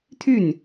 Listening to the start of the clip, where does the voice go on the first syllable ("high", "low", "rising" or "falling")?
falling